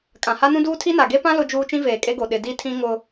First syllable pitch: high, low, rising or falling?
low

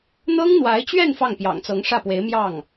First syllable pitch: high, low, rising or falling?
high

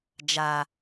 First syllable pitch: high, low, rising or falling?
low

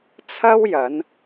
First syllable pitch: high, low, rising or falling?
high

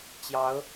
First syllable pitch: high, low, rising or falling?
rising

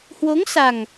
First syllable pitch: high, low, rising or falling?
rising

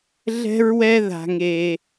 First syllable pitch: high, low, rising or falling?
high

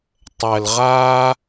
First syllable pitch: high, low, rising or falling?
low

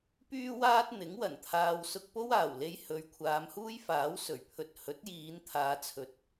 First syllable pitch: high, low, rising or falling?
high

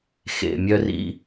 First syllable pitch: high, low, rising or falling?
low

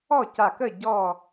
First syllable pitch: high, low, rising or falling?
falling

